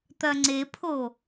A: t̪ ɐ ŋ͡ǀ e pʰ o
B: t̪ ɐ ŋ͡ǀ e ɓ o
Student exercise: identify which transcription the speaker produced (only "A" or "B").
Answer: A